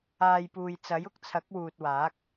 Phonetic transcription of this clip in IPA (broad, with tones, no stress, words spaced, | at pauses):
aː˨jpuː˨j t͡sɐ˨˥jʊ˥k̚t͡sʰɐ˨˥k̚ wuː˨t̚waː˨˥k̚